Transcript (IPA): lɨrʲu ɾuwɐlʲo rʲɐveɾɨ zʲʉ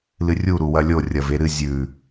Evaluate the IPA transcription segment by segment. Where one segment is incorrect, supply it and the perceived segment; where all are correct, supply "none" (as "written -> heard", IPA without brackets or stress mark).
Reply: none